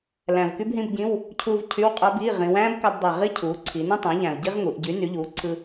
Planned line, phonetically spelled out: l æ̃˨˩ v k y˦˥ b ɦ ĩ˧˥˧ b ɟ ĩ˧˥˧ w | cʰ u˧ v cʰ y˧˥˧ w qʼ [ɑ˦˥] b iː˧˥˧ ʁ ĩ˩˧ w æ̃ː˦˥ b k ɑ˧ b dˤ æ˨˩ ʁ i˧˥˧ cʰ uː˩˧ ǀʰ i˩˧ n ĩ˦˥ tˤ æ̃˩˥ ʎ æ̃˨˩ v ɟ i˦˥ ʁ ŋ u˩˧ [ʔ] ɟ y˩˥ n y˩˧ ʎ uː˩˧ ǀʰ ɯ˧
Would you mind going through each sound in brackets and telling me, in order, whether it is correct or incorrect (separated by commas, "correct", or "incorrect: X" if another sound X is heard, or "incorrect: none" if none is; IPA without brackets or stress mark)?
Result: correct, correct